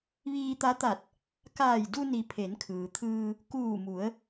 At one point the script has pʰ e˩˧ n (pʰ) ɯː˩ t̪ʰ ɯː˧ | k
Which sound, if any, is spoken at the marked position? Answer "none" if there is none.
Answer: kʰ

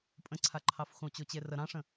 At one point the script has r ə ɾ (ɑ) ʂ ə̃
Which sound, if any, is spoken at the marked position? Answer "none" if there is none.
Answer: ɑ̃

